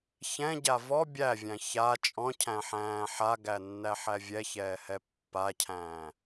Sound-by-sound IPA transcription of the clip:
çɛ̃ɟa vɔ bʲævʲæ̃ ça t͡ʃʼɔ̃cʰæ̃ħæ̃ː ħaɡænːæħæ vʲɛçɛːhɛ pːacʰæ̃ː

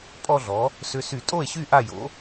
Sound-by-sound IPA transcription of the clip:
pʼɔ˥˧ɮɔ˩˥ | sʏ˧sy˧˩˧ tʼo˥˩e̯ɕy˥˩ ʔa˥˩jo̰˩˥

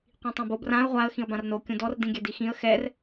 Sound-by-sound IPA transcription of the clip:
qʷĩtˤãbob rãə̯ ʁʷaə̯ xĩə̯bãrno kʲũdɔr dĩɡʲɛdixĩə̯ xɛr

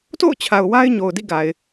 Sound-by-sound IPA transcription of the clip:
to̰˦˨ʊ̯t͡ɕʰa˨ʊ̯ wa˦ɪ̯ɲo˨ʊ̯dḭ˦˨ ɡa˨ɪ̯

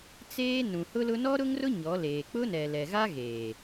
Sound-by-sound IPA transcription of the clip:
t͡seː˦ nũ˨hʊ˦lʊ˦ nɔ˦ɾʊ˦ŋrʊ˦ ɲɔ˨˦leː˨ k͡pʊ˦nɛ˨lɛ˨ɣa˦ ɣeː˨

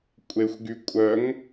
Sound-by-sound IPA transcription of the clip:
kʷʼexʷɡykʷʼœŋ

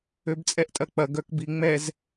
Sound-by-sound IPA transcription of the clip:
øbt͡sʼɛʔtʼɐk͡pɐ ɡœkbiŋ͡mɛz

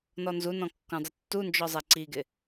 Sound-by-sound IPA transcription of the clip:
nɔnzu nɔ̃kːõdˤʊtːu nd͡ʒɔzˤɛǀiɡɪ

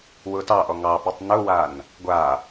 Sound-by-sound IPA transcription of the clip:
wʊtɑʔɔ ŋɑpɛtˤ nʊwan | ɡʷa

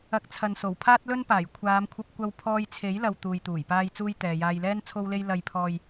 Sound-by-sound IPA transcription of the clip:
ɐ˨˥k̚t͡sʰɐ˨nso˨˩w pʰaː˥t̚lɵ˥npaː˨˩j kʷʰaː˨˧mkʷʰɐ˧p̚ kʷɐ˧wpʰɔː˧jt͡sʰe˨˥jlɐ˨w t̪uː˨jt̪uː˨˩j paː˧jt͡suː˧j t̪ɛː˨jaː˧jlɛː˥n t͡sʰo˥wle˥j lɐ˧jpʰɔː˧j

